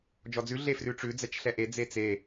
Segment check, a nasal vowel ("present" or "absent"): absent